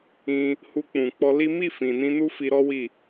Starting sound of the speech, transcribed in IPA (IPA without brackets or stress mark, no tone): ĩ